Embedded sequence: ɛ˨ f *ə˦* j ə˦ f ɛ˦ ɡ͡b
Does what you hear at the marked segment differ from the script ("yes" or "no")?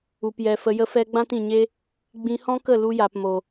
yes